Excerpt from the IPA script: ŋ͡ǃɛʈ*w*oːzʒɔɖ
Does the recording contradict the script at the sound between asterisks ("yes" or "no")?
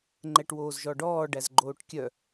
no